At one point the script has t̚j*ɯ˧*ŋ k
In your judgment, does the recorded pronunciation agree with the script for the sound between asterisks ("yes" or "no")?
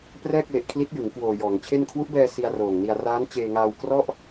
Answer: no